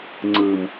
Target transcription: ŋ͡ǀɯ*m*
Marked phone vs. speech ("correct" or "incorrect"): correct